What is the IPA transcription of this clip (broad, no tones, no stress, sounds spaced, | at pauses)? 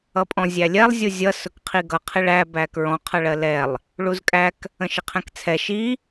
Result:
ʌ pʼ ɔ̃ zʲ æ lʲ ɛ lˠ zʲ u zʲ ʌ s ʊ k qʰ i ɡ ʌ qʰ ɪ ɭ æ b æ k ɹ ɔ̃ qʰ ʌ ɭ ɜ l ɛ lˠ | ɭ u z kʼ æ k | ə̃ ʃ ɪ qʰ ɛ̃ k t͡sʰ ɛ ʃ i